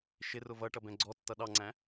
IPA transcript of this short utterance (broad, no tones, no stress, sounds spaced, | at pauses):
ʃ ɪ r ʊ v ʌ ʈ ʌ b ɛ̃ ɡ͡ǀ ɔ tː ʌ ɗ ɑ ŋ͡ǀ æ̃